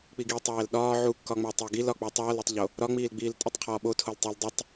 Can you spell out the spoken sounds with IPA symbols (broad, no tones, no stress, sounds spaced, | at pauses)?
k͡p i ɡ i tˤ æː l ɗ ɒː ʕ u kː ɒ ŋ͡m æ tˤ e ɡ i l ɒ k͡p uː tˤ ɒː l e tˤ ʎ o | ɾ ɒ ŋ͡m iː l ɡ͡b iː l tʼ u tˤ qʰ ɒː ɓ o tʰ o l tˤ u l dˤ i tˤ